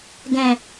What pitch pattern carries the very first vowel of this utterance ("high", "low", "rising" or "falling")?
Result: low